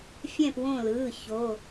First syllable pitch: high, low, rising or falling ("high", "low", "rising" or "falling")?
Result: falling